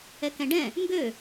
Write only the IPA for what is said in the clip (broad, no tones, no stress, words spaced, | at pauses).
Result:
ɛkɛ̃ɖɛ̃ | ŋɡø